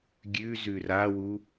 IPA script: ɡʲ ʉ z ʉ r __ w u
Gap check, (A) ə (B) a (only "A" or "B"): B